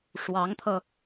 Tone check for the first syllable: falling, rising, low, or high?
rising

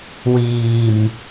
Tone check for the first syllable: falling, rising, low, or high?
low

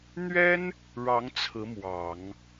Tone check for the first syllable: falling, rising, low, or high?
high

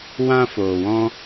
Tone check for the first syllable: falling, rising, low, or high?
high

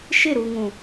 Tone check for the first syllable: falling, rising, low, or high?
falling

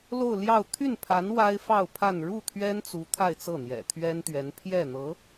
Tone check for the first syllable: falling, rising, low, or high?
falling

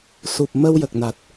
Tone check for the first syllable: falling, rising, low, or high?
low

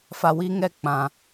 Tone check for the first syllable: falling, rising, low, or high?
low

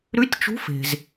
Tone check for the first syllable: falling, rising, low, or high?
rising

